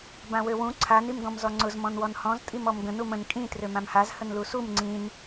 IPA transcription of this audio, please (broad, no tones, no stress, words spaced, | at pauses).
bãwøwũ ǀʰan imɡɔ̃mzɔŋ͡ǀʊz mɔ̃nwɔnhɔ̃z tʼimɔmɡə̃n umə̃n kʼĩ trømãmhaz hənlusum ŋ͡ǀĩn